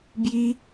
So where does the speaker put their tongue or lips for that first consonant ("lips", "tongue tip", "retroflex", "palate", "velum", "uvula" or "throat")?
lips